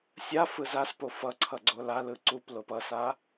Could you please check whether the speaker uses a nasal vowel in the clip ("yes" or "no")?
no